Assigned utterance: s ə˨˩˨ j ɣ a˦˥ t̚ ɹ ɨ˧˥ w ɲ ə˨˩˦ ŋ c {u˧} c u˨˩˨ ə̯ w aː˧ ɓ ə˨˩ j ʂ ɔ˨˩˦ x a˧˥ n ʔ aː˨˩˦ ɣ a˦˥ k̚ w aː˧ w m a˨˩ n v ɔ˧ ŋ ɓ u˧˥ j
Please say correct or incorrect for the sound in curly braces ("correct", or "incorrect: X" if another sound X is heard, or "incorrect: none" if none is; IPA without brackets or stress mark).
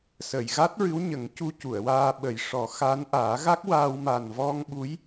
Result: correct